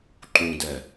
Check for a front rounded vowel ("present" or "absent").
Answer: absent